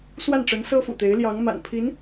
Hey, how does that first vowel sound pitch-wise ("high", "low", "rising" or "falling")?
falling